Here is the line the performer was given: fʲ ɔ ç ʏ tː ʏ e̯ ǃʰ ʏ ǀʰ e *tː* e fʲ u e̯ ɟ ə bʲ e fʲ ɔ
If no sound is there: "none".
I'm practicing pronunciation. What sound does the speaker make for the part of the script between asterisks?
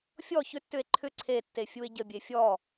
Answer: tː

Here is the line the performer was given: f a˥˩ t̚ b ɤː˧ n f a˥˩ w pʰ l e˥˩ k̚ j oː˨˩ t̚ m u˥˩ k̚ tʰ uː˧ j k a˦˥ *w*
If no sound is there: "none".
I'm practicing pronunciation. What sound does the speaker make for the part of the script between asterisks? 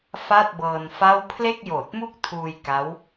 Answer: w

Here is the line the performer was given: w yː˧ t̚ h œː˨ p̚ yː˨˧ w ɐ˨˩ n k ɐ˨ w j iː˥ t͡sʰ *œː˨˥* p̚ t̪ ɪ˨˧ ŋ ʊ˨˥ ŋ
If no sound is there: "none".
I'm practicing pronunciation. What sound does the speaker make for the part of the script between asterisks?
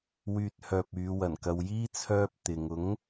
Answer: œː˥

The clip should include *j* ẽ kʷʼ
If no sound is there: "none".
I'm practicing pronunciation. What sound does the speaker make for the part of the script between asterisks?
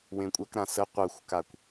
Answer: w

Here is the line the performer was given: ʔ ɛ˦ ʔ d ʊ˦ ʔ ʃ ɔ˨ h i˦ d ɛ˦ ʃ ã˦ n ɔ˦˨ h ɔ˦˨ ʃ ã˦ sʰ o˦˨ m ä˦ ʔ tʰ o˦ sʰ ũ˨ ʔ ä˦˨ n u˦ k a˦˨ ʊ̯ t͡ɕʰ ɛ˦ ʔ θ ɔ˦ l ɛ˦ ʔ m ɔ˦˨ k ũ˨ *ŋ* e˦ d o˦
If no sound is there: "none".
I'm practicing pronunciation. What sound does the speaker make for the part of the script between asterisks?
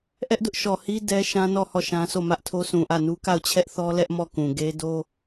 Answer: ɡ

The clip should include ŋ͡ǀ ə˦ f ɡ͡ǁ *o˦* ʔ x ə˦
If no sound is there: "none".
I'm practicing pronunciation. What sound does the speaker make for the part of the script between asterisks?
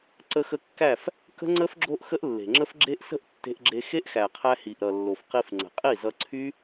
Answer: o˦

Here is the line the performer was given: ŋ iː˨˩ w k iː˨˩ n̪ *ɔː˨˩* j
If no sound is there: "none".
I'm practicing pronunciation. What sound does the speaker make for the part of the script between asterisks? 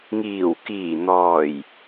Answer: ɔː˨˩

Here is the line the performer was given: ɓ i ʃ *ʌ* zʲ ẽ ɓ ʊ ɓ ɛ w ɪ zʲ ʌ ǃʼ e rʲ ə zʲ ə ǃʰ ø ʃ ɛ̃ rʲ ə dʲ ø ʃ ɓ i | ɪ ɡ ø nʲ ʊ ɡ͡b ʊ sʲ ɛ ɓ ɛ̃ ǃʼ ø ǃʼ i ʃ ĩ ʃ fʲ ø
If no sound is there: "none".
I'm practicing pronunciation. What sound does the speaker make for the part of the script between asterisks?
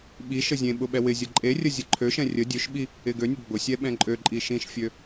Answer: ə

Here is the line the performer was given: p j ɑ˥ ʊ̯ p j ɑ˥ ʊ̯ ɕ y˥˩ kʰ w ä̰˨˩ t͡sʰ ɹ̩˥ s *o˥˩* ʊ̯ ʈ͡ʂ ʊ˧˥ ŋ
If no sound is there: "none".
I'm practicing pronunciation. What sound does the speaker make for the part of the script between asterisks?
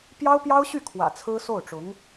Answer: o˥˩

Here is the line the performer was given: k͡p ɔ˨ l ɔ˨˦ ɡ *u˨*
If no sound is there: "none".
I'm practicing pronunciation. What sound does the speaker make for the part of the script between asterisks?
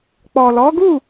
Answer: u˦˨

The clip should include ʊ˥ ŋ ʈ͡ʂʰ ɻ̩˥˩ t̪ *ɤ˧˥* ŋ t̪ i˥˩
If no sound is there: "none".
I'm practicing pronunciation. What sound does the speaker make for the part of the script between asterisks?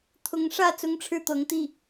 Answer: ɤ˧˥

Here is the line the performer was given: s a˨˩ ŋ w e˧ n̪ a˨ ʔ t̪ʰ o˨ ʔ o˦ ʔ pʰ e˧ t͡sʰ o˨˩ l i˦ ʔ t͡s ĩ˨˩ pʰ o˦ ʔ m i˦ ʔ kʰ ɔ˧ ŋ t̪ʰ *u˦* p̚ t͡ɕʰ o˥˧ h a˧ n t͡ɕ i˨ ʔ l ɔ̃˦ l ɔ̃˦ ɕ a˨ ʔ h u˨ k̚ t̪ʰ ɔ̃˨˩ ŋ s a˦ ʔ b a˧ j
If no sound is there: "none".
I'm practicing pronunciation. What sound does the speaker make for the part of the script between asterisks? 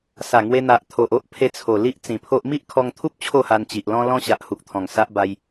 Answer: u˦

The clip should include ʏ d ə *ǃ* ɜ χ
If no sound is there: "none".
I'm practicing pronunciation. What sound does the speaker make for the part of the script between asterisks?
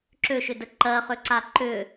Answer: ǃ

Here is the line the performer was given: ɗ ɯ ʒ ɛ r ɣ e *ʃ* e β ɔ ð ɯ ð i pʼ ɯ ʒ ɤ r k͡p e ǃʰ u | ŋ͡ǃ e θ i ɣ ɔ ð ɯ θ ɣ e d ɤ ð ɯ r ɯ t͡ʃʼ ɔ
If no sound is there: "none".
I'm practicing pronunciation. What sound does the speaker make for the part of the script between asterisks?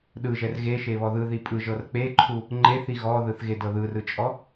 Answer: ʃ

